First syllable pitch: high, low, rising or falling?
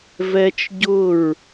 high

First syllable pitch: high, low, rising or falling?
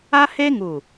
high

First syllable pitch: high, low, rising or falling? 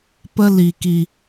high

